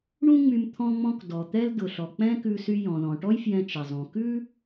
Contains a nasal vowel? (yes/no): yes